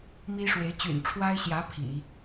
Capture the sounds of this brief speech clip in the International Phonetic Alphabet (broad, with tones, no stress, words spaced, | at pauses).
mi˥ʂwe˧˥ɪ̯ t͡ɕy̰˨˩nʈ͡ʂʰwa˥ɪ̯ɕjä˧˥ pʰḭ˨˩˦